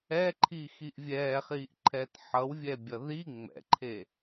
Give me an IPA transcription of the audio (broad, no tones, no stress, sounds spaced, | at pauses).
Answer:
ɛ ǃʰ i x i ʔ vʲ ɛː χ iː ʔ ǃʰ ɛ t ħ ʌ w vʲ ɛ bʲ ʌ ð i ŋ͡m ɛ̰ ǃʰ e